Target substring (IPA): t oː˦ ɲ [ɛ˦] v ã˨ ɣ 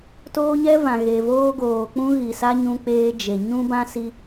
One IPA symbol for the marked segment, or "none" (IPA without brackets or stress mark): ɛ˦